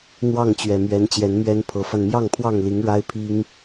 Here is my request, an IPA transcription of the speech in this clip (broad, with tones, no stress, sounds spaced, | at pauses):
n̪ w ɑ˥˨ ŋ t͡ɕ ɥ ɛ˨˩ m ɥ ɛ˨˦ n t͡ɕ j ɛ˨˦ n m ɥ ɛ˦ n pʰ ɤ˨˦ f a˧ n m j ɑ˥˨ ŋ pʰ w ɑ˥˨ ŋ l i˨˦ ŋ ɻ a˦ ɪ̯ pʰ i˦ ŋ